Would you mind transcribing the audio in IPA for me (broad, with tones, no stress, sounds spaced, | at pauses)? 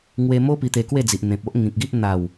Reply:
ŋ w e˧ m o˦ p i˧ t̪ e˧ k w e˥˧ d͡z i˨ ʔ n̪ ẽ˨ p̚ o˦ ʔ ŋ ĩ˨ k̚ ɡ i˦ ʔ n̪ a˨˩ w